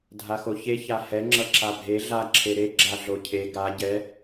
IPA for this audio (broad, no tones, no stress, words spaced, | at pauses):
dʱaxoçe çahɛ ŋ͡ǁʌǁabʱe ɮa ǁʰeɾe ɡ͡ǁaɮocʰe ɡa ɟɛ